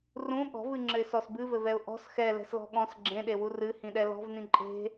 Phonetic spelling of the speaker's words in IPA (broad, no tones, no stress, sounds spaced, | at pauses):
r ũ ɠ ɔ̤ v ɨ ŋ͡ǁ ɘ ɪ̯ s ɔ s b ɨ v ɘ v ɛ ʊ̯ ʔ ɔ̤ s x ɛ l ɛ̤ s l ɔ̤ ɠ ɔ̃ s ɡ͡ǁ ẽ ɗ e w u r ɨ h ĩ ɗ ɛ l ɔ̤ v n ĩ ǃʼ e̤